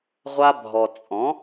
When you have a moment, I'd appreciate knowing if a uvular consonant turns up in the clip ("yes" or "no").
yes